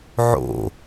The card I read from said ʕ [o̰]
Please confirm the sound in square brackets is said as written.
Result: yes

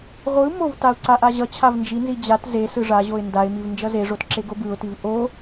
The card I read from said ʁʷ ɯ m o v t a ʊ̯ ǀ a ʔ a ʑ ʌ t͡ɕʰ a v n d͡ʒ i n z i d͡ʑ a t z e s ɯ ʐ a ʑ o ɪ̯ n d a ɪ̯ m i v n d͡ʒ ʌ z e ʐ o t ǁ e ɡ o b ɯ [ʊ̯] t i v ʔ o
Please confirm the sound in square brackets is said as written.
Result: yes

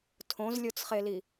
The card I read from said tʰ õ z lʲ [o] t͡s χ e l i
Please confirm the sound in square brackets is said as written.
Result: yes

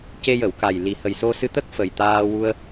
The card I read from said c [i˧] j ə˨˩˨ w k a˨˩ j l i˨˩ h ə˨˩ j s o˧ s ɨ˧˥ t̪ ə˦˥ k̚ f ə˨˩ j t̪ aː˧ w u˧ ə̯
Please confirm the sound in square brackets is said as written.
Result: no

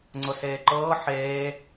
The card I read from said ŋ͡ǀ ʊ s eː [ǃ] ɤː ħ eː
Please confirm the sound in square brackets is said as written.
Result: yes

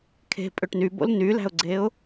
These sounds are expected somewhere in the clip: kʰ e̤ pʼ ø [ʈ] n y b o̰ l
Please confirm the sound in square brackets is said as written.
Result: yes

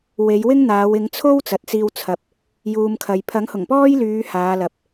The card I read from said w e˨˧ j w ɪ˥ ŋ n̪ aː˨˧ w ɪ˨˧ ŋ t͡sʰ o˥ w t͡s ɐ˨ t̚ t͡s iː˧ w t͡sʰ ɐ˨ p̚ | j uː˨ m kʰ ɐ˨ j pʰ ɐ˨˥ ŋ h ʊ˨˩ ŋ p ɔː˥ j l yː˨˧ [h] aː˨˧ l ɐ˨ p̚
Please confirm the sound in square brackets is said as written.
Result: yes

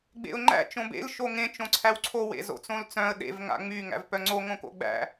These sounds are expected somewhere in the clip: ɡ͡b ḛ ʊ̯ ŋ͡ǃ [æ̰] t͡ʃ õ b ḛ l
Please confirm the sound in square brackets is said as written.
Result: yes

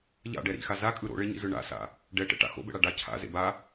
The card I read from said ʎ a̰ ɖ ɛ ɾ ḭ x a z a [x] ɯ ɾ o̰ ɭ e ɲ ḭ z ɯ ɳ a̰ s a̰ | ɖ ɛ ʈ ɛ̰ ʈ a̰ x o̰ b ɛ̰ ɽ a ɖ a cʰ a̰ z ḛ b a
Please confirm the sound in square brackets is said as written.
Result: no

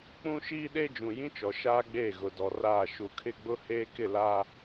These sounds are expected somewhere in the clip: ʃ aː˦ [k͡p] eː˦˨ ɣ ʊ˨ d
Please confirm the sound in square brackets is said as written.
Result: no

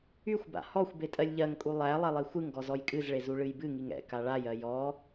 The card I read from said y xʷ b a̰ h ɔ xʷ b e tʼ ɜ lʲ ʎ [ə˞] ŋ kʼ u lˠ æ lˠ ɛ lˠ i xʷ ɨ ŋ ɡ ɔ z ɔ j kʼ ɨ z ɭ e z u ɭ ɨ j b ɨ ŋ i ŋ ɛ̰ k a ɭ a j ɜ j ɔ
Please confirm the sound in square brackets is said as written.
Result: no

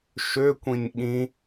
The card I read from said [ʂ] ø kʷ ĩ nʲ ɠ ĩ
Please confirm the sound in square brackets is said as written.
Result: no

